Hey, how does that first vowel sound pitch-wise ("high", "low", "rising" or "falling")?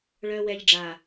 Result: low